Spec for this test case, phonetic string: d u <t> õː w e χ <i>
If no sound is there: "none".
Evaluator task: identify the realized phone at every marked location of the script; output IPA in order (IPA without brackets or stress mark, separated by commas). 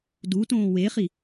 t, i